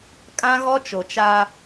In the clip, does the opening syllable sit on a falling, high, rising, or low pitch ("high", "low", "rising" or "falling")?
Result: high